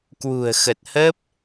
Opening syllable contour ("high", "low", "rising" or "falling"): low